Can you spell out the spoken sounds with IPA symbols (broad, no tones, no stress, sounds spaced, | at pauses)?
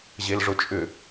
ʑ e l ʐ ʊ t͡ʃʼ ʏ